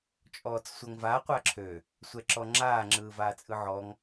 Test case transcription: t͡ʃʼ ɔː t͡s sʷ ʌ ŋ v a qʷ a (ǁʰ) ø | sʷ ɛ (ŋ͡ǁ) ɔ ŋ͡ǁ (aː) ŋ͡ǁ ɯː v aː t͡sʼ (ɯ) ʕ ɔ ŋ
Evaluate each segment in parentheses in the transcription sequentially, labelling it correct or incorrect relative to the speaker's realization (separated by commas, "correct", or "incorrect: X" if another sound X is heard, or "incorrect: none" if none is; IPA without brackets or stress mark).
correct, incorrect: ǁ, correct, correct